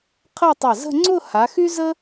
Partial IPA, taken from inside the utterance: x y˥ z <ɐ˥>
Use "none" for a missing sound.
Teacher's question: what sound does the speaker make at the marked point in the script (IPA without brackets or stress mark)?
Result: ə˥